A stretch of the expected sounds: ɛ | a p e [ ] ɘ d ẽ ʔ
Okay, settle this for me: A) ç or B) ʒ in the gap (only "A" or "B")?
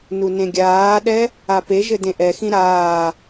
B